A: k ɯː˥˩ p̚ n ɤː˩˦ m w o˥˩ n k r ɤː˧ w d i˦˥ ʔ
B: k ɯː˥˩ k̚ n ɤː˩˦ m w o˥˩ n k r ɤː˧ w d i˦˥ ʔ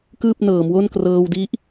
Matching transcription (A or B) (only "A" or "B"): A